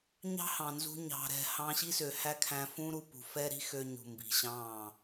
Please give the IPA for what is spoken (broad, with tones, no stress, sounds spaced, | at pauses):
ɲ ɑ̤˦ h ɑ̃˨ n z ṳ˧ ɲ ɑ̤˨ ɾ ɛ̤˨ h ɑ̃˧ ɕ i˦ s ø˨ h æ˦ kʰ æ̃˧ f ũ˦ ɾ u˧ p ṳ˨ f ɛ˦ ɾ i̤˦ x ø˧ ɲ ṳ˨ m b i̤˨ ɕ ɑ̃ː˦˨